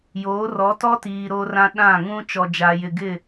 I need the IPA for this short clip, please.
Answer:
joː˨˦rɔ˨˦tɔ˦tiː˨ ɾo˦rã˦ ɗã˦˨ŋũ˦ t͡ʃɔ˨d͡ʒa˨jɪ˨ ɡɪ˦˨

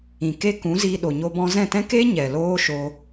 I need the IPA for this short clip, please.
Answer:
ĩ˨ke˦kũ˨˦ziː˧ ɗo˨ɲo˧bɔ̃˧ zɛ̃˦˨tɛ̃˦keː˦ ɲɛ˨loː˦ ʃoː˧

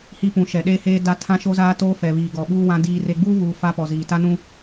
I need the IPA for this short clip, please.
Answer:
hi˦pũ˨ ʃɛ˨ɗeː˦heː˦ da˦ tʰã˦ʃo˦zaː˦toː˦ fɛ˨βiː˨ɡɔ˨ ɓuː˦ wã˦diː˦re˦ ɡ͡buː˦βuː˨ fa˦pɔ˨ziː˨ ta˦nũ˦

